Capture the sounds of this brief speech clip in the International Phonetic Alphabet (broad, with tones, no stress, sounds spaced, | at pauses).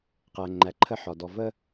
q æ˨ ŋ͡ǃ æ˨ ǃʰ ə˦ ħ ɒ˨ d ɔ˨ v ə˦